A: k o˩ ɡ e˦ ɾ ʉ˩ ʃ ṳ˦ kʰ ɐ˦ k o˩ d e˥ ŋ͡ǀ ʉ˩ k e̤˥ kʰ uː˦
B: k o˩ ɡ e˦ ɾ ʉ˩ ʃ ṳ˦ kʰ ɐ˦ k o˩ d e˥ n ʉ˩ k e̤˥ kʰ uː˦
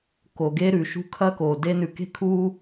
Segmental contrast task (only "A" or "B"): B